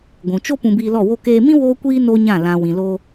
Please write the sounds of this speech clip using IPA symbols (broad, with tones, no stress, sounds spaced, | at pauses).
ɡʷ ũ˨ t͡ʃ o˦ p ũ˧ b iː˧ l ɔ˦˨ w o˧ k eː˧ m ĩ˦ w oː˦ kʷ iː˦ n o˦ ɲ ã˦˨ l ã˨ w ĩ˨ l o˧